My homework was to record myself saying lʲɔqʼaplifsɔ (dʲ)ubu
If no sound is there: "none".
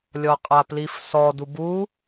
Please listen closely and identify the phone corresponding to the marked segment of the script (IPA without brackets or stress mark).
d